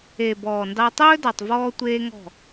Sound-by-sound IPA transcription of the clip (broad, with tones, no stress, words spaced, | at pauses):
e˨ bɔː˨ndɑ˧ tˤɵː˦dɑ˨tˤvɔː˧ tʷeː˦ŋɔ̤˦˨